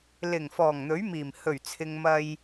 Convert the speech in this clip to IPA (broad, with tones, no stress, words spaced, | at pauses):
lɪ˨˩ŋ fɔː˨˩ŋn̪ɵ˨˥ɥmiː˨˩m hɵ˨˩ɥt͡sʰɪ˨ŋ mɐ˧j